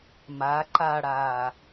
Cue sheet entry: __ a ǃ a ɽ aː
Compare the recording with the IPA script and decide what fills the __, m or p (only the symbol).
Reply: m